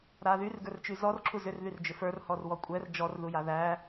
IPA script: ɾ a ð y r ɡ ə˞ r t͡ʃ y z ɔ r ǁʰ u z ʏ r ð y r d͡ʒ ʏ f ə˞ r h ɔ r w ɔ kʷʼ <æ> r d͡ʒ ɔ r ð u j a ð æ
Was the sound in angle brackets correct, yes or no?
no